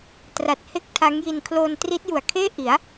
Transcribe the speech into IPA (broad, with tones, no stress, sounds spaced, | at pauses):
t r a˨˩ t̚ h e˦˥ k̚ tʰ a˦˥ ŋ j i˧ n kʰ l oː˧ n t r i˦˥ t̚ j u˨˩ a̯ kʰ eː˥˩ ʔ i˩˦ a̯